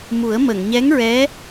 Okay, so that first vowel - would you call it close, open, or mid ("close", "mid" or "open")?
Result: close